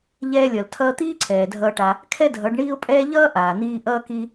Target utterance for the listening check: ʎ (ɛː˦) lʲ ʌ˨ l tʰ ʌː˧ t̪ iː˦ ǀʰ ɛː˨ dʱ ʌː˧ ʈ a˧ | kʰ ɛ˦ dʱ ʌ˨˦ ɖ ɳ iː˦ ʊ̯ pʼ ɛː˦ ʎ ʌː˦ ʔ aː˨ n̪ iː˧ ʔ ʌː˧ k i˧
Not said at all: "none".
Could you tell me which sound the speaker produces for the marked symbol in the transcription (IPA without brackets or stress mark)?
ɛː˧